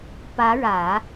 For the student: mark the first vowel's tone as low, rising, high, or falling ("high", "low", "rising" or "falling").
rising